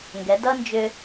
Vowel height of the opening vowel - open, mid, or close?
mid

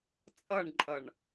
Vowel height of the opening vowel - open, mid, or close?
mid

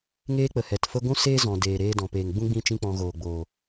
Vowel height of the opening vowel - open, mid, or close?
mid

